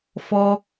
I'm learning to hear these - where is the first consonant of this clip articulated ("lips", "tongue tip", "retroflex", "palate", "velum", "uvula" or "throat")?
lips